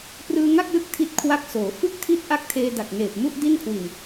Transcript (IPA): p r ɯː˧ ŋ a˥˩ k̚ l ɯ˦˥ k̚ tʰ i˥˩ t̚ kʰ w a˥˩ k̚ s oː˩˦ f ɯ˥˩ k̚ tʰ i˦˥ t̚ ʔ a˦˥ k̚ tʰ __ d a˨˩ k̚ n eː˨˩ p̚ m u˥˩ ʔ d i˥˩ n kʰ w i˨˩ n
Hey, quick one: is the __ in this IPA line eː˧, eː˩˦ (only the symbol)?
eː˧